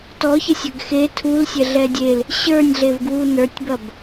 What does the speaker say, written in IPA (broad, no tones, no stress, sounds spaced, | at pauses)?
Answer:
t ɔ ç ɐ sʲ ɐ ɡ x e tʰ u l sʲ ɛ ɮ ɛ dʲ e l | ɕ ə˞ nʲ ɮ e v ɡ w u n ə˞ tʲ b ɐ b